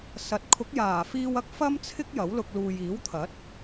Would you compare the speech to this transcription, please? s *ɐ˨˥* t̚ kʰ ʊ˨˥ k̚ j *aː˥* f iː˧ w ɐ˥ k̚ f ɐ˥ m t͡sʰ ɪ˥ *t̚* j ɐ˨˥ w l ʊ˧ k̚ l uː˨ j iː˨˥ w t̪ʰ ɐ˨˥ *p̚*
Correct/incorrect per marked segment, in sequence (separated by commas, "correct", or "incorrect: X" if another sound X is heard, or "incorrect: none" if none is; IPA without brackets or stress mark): correct, incorrect: aː˨˩, incorrect: k̚, incorrect: t̚